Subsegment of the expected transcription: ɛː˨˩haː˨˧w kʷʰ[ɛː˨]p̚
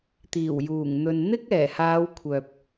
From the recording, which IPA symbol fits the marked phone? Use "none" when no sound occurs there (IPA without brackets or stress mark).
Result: œː˨